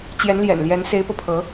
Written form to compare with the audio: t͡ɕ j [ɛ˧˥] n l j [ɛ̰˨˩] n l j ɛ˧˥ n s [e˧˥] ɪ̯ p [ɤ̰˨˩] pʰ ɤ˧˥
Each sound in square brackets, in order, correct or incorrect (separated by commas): correct, correct, correct, incorrect